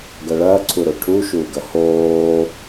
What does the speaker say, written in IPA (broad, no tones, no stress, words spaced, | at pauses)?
ɡɐɭɐːǀʰuɾo ʈʰuʃuːɡɐ hoː